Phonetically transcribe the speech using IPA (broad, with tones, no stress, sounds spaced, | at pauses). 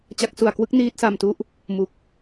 t͡ɕ a˦˥ k̚ s u˧ a̯ k w ɯ˦˥ k̚ n iː˦˥ t̚ s a˧ m t u˦˥ ʔ | m u˨˩ k̚